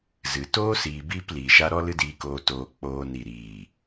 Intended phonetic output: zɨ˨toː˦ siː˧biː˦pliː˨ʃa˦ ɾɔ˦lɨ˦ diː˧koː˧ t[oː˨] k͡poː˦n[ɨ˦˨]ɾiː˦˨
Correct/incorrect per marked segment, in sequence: incorrect, incorrect

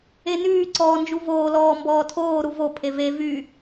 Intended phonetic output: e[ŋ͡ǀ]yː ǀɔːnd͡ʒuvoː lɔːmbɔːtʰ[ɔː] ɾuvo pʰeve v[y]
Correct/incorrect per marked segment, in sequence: incorrect, incorrect, correct

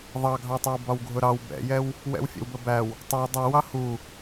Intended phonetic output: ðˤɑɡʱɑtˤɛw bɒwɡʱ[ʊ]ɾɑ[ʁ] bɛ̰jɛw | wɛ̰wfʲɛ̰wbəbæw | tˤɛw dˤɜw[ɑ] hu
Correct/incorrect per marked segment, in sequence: correct, incorrect, correct

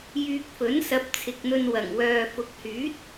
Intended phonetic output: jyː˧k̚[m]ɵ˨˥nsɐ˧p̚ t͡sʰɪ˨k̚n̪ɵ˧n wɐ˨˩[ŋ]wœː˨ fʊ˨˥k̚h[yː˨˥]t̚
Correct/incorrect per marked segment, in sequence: incorrect, correct, correct

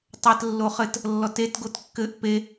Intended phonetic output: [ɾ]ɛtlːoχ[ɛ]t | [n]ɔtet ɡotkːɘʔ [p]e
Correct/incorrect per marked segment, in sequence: incorrect, incorrect, incorrect, correct

